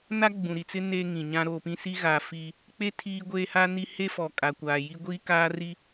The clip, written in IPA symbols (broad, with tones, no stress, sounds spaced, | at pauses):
n a˦ ɡ͡b ũ˨ ɾ i˨ t͡s ɪ˦ n e˦ ŋ ĩ˨ ɲ ã˦ ɾ oː˨ p ĩ˦ s i˦ ɣ aː˨ f i˦ | k͡p e˦ tʰ iː˦ ɡʷ eː˦ h a˦ n i˦ h e˦ f ɔ˨ kʼ a˨ kʷ aː˨ j i˦ ɡʷ iː˦ k aː˦ r i˦